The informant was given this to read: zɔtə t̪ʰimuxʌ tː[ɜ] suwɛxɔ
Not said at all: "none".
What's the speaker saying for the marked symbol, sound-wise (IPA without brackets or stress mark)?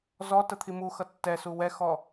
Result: ɛ